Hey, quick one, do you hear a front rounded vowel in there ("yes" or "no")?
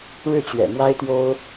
no